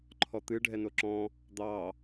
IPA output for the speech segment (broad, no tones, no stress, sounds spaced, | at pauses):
ǃʰ ɔ t̪ ɨ ɖʱ ɛ n o ǁ ɔ̃ | d̪ ɑ